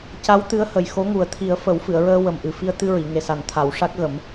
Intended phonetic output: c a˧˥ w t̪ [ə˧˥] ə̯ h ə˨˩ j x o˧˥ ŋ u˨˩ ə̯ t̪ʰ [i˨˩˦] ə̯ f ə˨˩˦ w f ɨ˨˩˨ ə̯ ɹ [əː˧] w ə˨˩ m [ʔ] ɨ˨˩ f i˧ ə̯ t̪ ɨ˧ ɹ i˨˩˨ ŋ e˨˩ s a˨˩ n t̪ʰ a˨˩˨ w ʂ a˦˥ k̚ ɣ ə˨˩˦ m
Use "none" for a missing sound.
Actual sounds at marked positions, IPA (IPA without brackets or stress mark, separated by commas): ɨ˧˥, i˨˩˦, əː˧, ʔ